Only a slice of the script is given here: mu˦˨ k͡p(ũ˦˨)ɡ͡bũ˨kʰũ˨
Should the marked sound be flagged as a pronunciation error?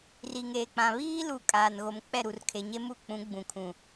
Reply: yes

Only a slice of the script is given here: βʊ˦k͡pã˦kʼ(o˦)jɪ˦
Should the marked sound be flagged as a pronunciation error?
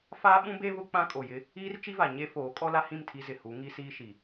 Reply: yes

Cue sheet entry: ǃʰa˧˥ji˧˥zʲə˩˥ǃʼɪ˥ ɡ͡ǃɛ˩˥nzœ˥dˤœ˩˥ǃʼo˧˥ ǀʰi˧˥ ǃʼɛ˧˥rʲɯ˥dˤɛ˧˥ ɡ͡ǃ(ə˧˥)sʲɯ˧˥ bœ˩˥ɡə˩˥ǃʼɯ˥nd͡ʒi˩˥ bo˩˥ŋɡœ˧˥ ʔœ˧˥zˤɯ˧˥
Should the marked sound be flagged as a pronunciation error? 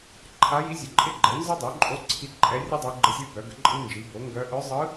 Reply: no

